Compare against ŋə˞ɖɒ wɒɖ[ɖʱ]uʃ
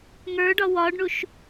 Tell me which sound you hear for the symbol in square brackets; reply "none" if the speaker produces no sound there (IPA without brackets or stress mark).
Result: ɳ